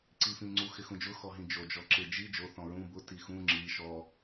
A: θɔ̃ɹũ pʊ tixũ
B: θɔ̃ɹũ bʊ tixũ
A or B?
B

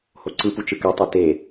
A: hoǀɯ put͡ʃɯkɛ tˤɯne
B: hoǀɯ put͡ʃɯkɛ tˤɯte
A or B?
B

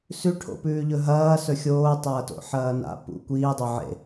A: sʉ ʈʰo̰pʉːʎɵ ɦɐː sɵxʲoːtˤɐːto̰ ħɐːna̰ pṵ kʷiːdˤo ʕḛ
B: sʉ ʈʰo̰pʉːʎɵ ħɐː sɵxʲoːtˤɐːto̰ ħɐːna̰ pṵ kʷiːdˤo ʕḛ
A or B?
A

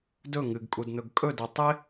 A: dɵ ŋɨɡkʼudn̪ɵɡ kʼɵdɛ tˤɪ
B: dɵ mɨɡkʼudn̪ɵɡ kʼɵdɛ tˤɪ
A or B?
A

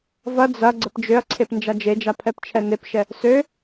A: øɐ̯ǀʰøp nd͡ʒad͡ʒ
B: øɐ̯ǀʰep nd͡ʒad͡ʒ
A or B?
B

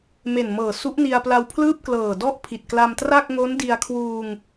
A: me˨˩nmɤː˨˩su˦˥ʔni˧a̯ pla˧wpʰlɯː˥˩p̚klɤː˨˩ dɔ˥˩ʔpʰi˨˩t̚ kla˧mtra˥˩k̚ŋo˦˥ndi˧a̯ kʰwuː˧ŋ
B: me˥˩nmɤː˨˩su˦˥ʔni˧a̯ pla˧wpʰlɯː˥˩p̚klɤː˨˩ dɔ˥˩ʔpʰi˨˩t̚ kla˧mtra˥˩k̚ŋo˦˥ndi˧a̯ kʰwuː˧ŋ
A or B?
A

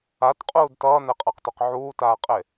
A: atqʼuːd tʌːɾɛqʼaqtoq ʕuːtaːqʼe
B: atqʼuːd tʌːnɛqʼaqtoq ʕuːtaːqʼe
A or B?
B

